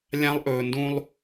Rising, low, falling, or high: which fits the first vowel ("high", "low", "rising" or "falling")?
high